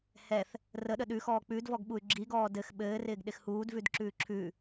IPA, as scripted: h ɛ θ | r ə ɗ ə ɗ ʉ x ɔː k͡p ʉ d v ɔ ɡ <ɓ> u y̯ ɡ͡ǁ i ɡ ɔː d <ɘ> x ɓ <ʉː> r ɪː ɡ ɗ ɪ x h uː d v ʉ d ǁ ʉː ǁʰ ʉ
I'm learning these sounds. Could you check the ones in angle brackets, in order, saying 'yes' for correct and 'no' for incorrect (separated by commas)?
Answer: yes, yes, no